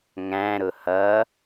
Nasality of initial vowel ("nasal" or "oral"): nasal